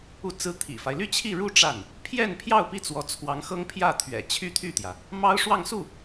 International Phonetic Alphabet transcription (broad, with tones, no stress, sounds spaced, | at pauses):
u˥˩ t͡s ɹ̩˥ t̪ʰ ḭ˨˩ f a˦ ɪ̯ l y˥˧ t͡ɕʰ i˥˧ ɻ u˥˧ ʈ͡ʂ a˥˩ n | pʰ j ɛ˥˧ n pʰ j ɑ˥˧ ʊ̯ p i˥˩ t͡s w ɔ˧˥ t͡sʰ w ɑ˧˥ ŋ x ɤ˥ ŋ pʰ j ä˥˩ t̪ʰ ɥ ɛ̰˨˩ t͡ɕʰ y˥ t̪ʰ y˥˩ t̪ j ä˩ | m ɑ˥ ʊ̯ ʂ w ɑ˥˧ ŋ s u˥˩